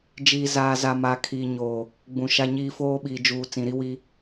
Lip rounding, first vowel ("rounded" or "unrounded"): unrounded